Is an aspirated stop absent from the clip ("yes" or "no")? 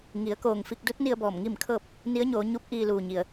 no